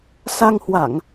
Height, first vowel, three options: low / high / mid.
low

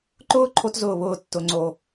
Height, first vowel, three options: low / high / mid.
high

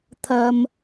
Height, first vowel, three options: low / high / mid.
low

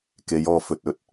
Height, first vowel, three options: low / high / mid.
mid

